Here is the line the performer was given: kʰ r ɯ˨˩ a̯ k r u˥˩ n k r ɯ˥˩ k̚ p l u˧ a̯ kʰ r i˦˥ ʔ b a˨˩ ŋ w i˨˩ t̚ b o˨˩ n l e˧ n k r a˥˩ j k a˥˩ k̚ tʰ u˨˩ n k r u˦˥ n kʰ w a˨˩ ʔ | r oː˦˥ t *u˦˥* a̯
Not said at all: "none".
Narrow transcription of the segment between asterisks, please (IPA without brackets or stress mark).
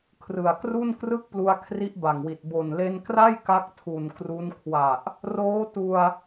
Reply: u˧